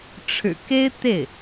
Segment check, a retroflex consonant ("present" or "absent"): present